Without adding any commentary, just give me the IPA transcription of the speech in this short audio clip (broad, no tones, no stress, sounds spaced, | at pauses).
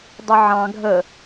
dˤ ə ʕ ɑ̃ ɡʱ ə